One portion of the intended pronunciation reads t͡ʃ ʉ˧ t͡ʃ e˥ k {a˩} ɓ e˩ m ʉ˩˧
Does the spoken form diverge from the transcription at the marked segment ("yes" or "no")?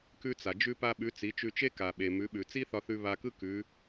no